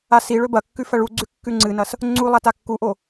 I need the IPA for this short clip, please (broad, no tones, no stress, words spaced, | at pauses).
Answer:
asiɭɵ bɐkːʉ fɐɭuɡ͡ǀʉ kːʉŋ͡ǀɨnɐs | ŋ͡ǀu lˠatakːuʔo